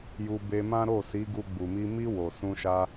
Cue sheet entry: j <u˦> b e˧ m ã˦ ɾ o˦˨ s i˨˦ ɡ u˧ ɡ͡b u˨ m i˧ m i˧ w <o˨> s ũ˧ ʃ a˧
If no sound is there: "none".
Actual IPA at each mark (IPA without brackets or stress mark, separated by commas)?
u˧, o˨